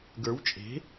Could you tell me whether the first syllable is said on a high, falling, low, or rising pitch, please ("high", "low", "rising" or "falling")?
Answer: rising